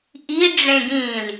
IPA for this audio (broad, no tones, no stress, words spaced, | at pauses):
ʔi ɖ͡ʐẽɡĩl